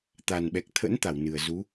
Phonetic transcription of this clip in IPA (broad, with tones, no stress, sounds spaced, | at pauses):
t̪ a˨˩ n ɓ ɛ˨˩ k̚ t̪ʰ ə̰˧˥ n t̪ a˧˩ w n ɨ˨˩ ə̯ z u˨˦